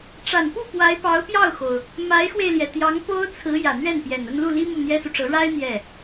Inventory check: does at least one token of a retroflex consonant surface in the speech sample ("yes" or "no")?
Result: yes